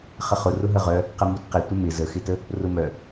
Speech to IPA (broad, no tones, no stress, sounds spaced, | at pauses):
χ ə χ ʊ r ʊ ɦ ə ʁ œ | q ə m u t q ɪ tʷ ə m ɪ z ə x ɪ t ə | r ʊ m œ